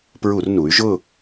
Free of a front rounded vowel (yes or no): no